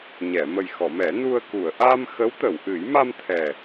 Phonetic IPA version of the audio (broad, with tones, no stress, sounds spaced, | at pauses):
ɲ ɛ˨˩˨ m ə˨˩ j x ɔ˨˩˨ m ɛ˨˩˦ n u˧ ə̯ k u˨˩˨ ə̯ ʔ a˧ m x ə˧˥ w t̪ ə˨˩˨ w ʔ ɨ˨˩˦ j m a˧ m t̪ʰ ɛ˨˩